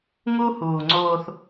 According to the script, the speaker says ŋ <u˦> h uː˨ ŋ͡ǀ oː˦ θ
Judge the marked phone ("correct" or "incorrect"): correct